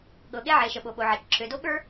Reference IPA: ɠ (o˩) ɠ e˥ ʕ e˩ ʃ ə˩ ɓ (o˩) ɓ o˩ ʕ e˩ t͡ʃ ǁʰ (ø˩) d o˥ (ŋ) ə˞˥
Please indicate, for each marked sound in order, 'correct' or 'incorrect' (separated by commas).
incorrect, correct, correct, incorrect